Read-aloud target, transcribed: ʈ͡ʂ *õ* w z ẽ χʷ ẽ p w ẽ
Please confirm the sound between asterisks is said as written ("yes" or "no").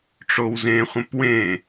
no